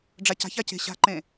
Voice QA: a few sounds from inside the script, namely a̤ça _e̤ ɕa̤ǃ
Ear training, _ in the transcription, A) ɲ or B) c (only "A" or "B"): B